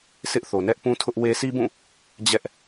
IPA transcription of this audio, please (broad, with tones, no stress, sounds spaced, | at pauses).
s ɪ˦ ʔ θ o˨ n ɛ˦ ʔ p ũ˦ tʰ ʊ˦ ʔ w e˦ sʰ i˦ b ũ˦˨ | d͡ʑ ɛ˦ ʔ